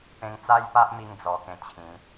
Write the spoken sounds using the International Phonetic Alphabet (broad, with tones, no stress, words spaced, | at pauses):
pẽ˧ŋt͡sa˦jpa˦ʔmi˧ŋ d͡zɔ˧kẽ˧t͡ɕʰĩ˨˦